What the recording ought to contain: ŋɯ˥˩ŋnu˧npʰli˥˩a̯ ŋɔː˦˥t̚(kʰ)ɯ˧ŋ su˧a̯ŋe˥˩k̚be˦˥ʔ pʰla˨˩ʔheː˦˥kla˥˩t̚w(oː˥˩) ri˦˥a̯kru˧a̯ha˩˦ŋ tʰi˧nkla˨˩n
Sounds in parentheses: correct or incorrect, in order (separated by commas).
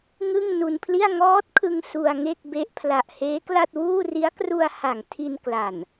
correct, incorrect